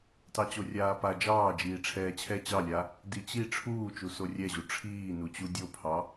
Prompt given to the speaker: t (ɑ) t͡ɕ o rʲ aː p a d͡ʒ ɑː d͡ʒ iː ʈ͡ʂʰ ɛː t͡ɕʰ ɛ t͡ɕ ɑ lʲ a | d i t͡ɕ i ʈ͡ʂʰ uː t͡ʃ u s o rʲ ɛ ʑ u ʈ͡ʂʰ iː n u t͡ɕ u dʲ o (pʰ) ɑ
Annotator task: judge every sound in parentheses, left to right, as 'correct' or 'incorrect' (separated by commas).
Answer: correct, correct